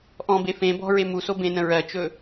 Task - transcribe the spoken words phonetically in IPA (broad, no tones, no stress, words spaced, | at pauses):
ʔɔ̃be fẽ bɔ̤ɹe muso bẽnə̃ ɹɜt͡ʃɵ